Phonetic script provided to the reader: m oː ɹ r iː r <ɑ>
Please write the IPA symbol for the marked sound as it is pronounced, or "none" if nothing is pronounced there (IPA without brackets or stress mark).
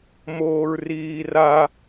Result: a